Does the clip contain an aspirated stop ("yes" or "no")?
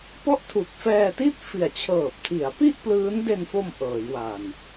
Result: yes